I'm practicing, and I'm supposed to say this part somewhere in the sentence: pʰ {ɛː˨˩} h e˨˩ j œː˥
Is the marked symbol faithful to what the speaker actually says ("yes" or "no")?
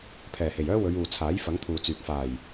yes